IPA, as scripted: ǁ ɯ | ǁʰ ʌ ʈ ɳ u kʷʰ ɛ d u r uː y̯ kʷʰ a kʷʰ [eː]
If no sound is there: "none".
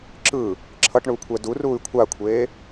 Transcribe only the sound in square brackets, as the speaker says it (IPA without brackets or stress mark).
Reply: eː